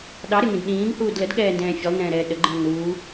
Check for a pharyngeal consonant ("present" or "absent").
absent